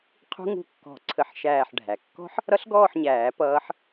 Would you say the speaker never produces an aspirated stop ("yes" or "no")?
no